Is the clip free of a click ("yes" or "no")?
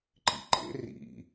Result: no